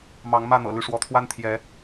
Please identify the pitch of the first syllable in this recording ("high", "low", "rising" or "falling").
rising